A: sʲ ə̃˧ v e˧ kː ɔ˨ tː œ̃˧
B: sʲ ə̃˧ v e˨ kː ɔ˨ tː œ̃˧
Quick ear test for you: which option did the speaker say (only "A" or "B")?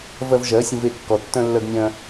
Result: A